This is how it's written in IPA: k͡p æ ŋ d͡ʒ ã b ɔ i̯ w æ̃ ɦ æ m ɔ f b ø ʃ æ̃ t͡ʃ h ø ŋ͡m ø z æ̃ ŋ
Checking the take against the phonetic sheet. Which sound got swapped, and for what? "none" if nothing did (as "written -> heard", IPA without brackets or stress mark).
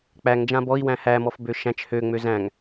ɦ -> h